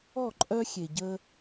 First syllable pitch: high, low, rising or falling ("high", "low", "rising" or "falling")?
falling